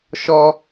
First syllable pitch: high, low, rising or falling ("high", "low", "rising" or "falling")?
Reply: high